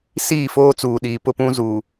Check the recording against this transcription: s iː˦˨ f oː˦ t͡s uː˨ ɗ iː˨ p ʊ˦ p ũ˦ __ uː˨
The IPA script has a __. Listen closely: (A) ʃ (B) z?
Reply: B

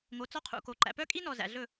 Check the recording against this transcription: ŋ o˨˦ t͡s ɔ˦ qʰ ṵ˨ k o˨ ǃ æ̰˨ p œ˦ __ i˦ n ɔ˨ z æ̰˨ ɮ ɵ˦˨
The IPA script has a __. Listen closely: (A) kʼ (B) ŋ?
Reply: A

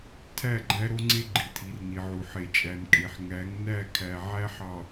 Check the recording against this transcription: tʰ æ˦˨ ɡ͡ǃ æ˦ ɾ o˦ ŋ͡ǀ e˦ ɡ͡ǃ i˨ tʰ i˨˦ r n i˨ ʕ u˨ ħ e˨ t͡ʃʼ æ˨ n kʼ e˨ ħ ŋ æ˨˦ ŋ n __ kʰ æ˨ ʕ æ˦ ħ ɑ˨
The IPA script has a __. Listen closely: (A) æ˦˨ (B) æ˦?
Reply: A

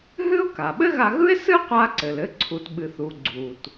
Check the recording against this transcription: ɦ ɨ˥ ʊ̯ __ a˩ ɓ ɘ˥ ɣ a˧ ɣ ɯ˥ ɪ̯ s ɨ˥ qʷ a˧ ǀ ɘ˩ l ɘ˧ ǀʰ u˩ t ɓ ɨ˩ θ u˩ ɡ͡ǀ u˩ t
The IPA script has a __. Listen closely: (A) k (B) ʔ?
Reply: A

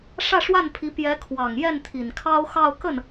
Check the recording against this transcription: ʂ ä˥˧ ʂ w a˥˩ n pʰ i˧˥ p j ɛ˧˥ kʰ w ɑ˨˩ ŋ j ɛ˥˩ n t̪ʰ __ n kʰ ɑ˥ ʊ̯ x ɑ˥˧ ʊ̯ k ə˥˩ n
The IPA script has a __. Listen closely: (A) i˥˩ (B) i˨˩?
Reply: B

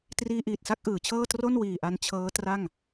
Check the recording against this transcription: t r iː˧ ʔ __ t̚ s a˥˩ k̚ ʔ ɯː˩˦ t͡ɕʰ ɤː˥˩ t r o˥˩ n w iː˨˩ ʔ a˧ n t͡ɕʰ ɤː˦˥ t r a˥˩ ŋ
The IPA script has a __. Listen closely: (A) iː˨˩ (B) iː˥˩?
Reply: A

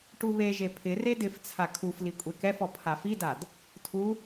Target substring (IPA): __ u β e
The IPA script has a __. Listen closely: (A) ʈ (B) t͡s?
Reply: A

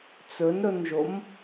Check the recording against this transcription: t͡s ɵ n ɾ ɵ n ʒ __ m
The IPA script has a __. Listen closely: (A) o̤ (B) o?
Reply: B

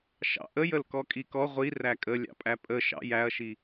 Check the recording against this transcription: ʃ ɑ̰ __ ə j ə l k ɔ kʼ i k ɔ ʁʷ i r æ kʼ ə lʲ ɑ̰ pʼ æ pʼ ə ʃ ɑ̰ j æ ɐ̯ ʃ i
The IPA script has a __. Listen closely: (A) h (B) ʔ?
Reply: B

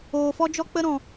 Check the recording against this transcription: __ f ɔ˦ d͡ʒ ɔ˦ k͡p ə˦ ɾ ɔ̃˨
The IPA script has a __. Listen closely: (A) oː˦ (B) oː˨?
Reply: B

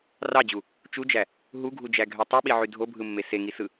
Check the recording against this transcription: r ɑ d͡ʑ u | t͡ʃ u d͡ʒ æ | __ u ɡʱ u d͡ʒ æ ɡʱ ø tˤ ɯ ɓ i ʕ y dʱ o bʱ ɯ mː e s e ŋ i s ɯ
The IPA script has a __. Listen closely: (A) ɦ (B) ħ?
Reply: A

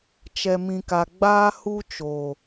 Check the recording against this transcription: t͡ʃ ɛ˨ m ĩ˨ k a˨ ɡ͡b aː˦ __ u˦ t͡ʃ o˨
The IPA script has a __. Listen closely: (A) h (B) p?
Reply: A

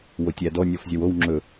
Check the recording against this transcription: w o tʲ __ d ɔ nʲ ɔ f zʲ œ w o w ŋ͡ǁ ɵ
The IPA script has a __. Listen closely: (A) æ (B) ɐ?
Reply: A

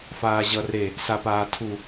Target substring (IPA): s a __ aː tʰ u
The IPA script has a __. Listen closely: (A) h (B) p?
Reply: B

